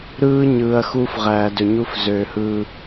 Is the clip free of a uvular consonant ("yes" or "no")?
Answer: no